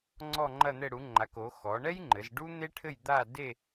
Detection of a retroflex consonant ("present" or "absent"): present